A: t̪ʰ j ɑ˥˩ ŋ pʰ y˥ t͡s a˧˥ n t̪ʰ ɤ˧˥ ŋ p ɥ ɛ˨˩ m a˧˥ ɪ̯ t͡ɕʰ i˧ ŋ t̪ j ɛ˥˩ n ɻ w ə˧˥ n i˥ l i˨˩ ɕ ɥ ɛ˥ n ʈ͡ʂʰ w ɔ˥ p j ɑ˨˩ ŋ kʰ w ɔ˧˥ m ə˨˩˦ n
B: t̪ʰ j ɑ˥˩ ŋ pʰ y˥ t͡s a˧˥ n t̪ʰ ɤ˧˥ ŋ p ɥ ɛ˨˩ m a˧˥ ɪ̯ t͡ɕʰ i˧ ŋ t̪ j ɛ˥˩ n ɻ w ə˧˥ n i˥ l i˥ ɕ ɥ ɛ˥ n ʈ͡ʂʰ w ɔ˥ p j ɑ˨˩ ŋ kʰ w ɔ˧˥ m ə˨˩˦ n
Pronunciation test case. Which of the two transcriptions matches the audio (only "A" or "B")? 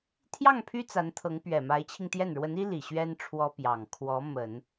A